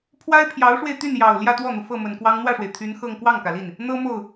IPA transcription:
pʰ w a˥ ɪ̯ pʰ j ɑ˧˥ ʊ̯ ʂ w e˧ ɪ̯ t̪ y˥˩ n j ɑ˨˩ ʊ̯ l j ä˥˧ t̪ w ɔ˥˩ n̪ u˩ f ɤ˥˩ m ə˨˩ n k w ɑ˥ ŋ n̪ w ä˥˩ ʂ w e˩ ɪ̯ t̪ʰ y˧˥ n x ɤ˥˧ ŋ k w ɑ˥˩ ŋ k ä˩ l i˥˩ n | n̪ ɤ˥ m o˥˩ ʊ̯

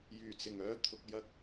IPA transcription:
j yː˨˩ t͡s ɪ˨˩ ŋ œː˧ t̪ʰ ʊ˨ k̚ j ɐ˧ k̚

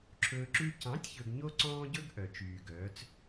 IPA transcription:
ǁʰ ɵː˧ ǁ ʉ˦ c ɑ̃˨˦ tʲ ç ɵ˨ ɡ ɲ o˦ ǀ ɔ̃ː˦ ɟ ɵ˦ ɡ ʔ œ˨ t͡ʃ yː˨ ɡ œː˨˦ t͡s

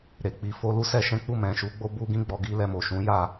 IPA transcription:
ɾ e˨ k͡p i˨ f o˧ l u˦ s ɛ˦ ʃ ɛ̃˦ k͡p u˦˨ m ɛ̃˨ ʃ u˨˦ ɡ͡b o˧ b u˧ ɡ ĩ˧ ɡ͡b ɔ˨ ɡ i˧ l ɛ˧ m o˨ ʃ ũ˨˦ j a˦˨

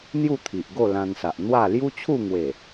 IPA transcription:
n̪ j u˥˧ t̪ʰ i˨ ʔ ɡ o˥˧ l ã˧ n s a˨ ʔ n̪ w a˥˧ l j u˦ t͡ɕʰ u˥˧ ŋ w e˨˩

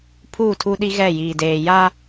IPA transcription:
pʰ uː˦˨ tʰ u˦ ɗ i˦ ɣ ɛ˦˨ j iː˨ d eː˨ j a˦

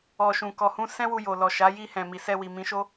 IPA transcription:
ɔ˨ ʃ ũ˨ k ɔ˨ h ũ˧ s ɛ̃˦ w u˧ j o˨ l ɔ˨ ʃ a˨˦ j i˧ h ɛ̃˨ m i˨ s ɛ˧ w i˨ m ĩ˨˦ ʃ o˦

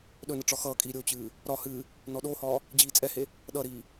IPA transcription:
ɗ ɵ n ə ʈ͡ʂ ɒ x ʌː kʼ iː ɾʲ o t͡ɕ ɨː | ɾ ɒ h ɨː | n ɔ ɗ o h ɒː | d͡ʑ iː t͡sʼ ɛ h e | ɗ ʌ ɾ iː

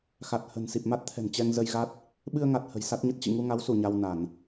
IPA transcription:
x a˨˩ t̚ h ə̤˨˩ n s i˨˩ p̚ m a˦˥ t̚ t̪ʰ ɛ̤˨˩ n t͡ɕ ɛ˧ ŋ z ə˧ j ɣ a˦˥ t̚ | ɓ ɨ˧ ə̯ ŋ a˨˩ t̚ h ə̤˨˩ j s a˦˥ t̚ ɲ ə˦˥ t̚ t͡ɕ ḭ˧˨ ŋ u˧ ŋ a˨˦ w s u˧˩ ɲ a˧ w n a˧˩˨ n

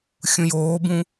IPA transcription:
xʲ ũ j oː b ũ

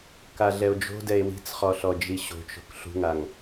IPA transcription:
k a ɮ ɛ o̯ d͡ʒ o̤ d ɛ e̯ w i̤ t͡s χ ɔ ɬ ɔ d͡ʒ i ɕ o̤ t͡ʃ o̤ k ɬ ṳ ŋ a ŋ

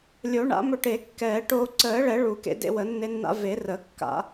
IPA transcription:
lʲ o˨˩˦ ɳ a̰˨˩˦ m ɵ˧ ʈ e˨˩˦ kː ɛː˨˩˦ ʈ oː˧ ǀ əː˨˩˦ ɭ ɛ˨˩˦ ɭ u˨˩˦ k ḛ˧ d ḛ˧ w ə˨˩˦ nː e˧ nː a̰˧ v e˨˩˦ r ə˨˩˦ kː a̰˨˩˦

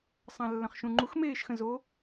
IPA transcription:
sˤ ã lː ə̃ χ ʃ ũ ŋ͡ǃ u x m eː ʃ x ə̃ z o

